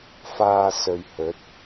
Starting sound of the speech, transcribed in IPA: f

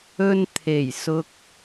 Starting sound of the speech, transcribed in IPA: ɵ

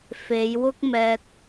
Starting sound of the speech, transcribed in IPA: f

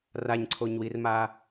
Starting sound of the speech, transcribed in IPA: r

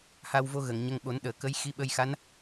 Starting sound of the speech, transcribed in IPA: h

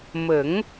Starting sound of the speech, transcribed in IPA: m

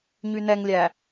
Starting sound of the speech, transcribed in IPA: ɲ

